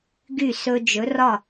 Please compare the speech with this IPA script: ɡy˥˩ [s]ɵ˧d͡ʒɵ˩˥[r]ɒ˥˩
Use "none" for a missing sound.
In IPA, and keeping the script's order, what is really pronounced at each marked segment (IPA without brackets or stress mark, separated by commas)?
s, r